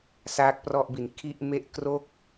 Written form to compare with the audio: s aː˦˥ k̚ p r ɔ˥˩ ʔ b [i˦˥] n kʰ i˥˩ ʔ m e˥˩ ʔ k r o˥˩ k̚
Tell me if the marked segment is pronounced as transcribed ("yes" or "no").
no